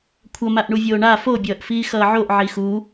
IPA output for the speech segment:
kʷʰ ʌ m a ʔ ɳ u vʲ oː ɳ a f o bʲ ʌː ʔ f iː x ʌː ʕ o ʔ ʕ i x u

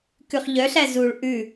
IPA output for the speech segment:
k ʉ χ ʎ œ ɬ æ z u ɭ ʔ ʉ

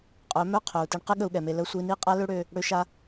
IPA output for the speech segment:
qʼ œ˨˦ m œ˦ qʰ œ˨ u̯ t e˧ ɳ q ɪ˦ ɠ ə˧ u̯ ɠ ɛ˨ m e˧ l ə˧ sʷ i˧ n i˦ qʼ a˦ l ø˦ ɽ ø˧ | ɽ ø˧ ʃ a˧

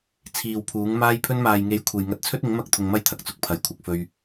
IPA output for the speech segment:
t͡sʰ iː˨ w pʰ uː˨˥ ŋ m aː˧ j pʰ ɵ˧ n m aː˨ j ŋ e˨˥ j kʷʰ e˨ j ŋ ɐ˧ t̚ t͡sʰ ɵ˥ t̚ ɪ˨˥ ŋ m ɐ˥ k̚ t̪ʰ ʊ˧ ŋ m ɐ˥ j t̪ʰ ɐ˨ k̚ t͡s ʊ˧ k̚ pʰ ɐ˨ j kʷʰ ɐ˧ k̚ f ɵ˧ ɥ

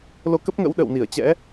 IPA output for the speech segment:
l o˧ k ə˦˥ p̚ ŋ ə̰˧˥ w ɗ ə̰˧˨ w n i˧˩ ə̯ t͡ɕ ɛ̰˧˥

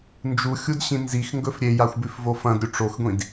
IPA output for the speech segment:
n d͡ʒ u xʲ u d ɕ ĩ n z i x ŋ ɡ ɵ f ɾʲ e j a xʷ b ʉ f v o f ɐ̃ d ɾʲ u ʈ͡ʂ o x ɡʷ ĩ d

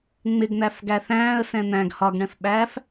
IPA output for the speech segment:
ŋ͡m ɪ ɡ n̪ æ f ɡ æ θ æ̃ː ə̯ s ɛ̃ n̪ æ̃ ɡ h ɒ ɡ ɳ ɛ̃ f ɓ æː f

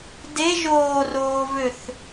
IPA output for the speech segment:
d e ʒ oː r oː v ø θ

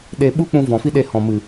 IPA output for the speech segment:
ɗ e˧ ɓ u˦ k͡p ũ˧ v ɔ̃˨ f i˦ ɗ e˧ h ɔ̃˨ m ɨ˨

